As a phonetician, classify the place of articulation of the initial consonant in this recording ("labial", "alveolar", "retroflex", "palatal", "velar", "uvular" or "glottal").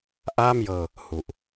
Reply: glottal